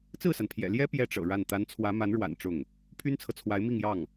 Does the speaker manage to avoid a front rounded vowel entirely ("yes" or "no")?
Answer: no